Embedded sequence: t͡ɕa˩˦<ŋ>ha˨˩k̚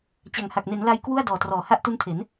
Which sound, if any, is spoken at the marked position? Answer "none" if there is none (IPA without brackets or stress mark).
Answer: ŋ